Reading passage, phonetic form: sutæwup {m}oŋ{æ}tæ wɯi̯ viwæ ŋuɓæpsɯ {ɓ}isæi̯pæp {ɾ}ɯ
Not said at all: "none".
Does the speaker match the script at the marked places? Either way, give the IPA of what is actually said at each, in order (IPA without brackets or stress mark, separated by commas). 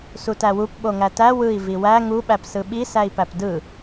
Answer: ɓ, æ, ɓ, d